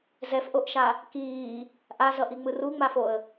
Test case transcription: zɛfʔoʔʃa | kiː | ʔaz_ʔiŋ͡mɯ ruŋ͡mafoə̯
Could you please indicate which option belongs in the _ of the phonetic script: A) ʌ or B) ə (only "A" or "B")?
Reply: A